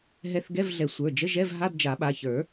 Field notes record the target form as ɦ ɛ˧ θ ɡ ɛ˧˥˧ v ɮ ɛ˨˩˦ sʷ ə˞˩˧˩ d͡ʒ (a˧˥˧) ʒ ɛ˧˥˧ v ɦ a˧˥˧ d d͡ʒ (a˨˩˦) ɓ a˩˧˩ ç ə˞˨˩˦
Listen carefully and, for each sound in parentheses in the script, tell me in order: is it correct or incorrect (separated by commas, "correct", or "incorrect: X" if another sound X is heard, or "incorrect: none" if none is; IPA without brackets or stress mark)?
incorrect: ə˧˥˧, correct